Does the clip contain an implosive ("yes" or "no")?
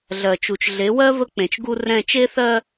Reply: no